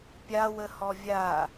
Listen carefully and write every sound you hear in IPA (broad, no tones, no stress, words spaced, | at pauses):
pʲawəhɔ vʲa